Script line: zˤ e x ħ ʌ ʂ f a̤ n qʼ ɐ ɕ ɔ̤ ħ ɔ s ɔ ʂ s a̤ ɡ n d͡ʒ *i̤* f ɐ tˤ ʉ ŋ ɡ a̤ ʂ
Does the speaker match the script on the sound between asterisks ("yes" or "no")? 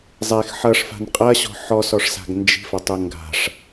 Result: yes